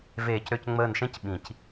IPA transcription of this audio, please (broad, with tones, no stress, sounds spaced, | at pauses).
v eː˨˩˦ c ɾ ø˧˩ c ŋ͡m əː˧˩ n ʃ ẽ˧˥ c ɓ ĩ˨˩˦ c